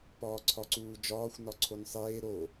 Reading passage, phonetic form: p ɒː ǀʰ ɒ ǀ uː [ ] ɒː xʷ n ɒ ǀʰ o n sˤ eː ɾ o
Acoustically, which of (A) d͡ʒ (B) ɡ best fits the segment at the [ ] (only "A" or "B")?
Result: A